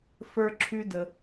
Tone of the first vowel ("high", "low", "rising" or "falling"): high